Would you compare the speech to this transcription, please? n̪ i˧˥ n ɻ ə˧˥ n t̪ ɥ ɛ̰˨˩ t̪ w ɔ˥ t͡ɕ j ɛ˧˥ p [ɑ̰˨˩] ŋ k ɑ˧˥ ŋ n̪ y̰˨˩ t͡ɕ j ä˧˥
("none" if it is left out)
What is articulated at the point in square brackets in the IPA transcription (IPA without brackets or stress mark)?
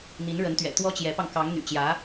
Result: ɑ˧